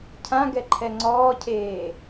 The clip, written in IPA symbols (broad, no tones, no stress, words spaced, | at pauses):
cʰãɡɛǃʰɛ ŋ͡ǀɔːcʰeː